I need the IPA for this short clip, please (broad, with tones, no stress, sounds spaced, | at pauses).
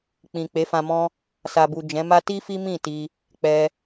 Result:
k͡p ĩ˨ k͡p e˨˦ f ã˧ m ɔ̃˦ | s a˨ b u˨ d͡ʒ ɛ̃˨˦ m a˦ t i˦ f i˦ m ĩ˦˨ t i˧ | k͡p ɛ˦